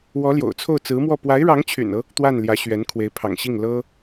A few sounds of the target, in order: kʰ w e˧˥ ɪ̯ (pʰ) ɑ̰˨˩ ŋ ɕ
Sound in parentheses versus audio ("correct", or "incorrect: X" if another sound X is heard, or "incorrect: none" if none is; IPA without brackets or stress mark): correct